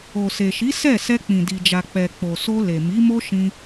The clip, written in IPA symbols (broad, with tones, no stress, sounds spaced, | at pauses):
o˨ s e˨ ʃ i˨˦ s ɛ˦˨ s ɛ˧ k͡p ĩ˨ d i˨ d͡ʒ a˨ k͡p ɛ˨ k͡p o˨ s o˧ l e˨ m i˨˦ m o˦ ʃ ĩ˧